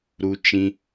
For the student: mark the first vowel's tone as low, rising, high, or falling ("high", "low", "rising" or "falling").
high